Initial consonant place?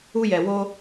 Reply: palatal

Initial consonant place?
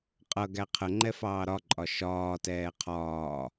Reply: uvular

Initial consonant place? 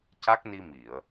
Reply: palatal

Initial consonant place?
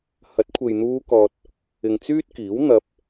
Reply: glottal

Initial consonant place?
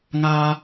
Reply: velar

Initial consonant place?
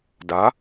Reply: alveolar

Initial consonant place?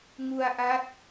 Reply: velar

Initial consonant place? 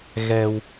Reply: velar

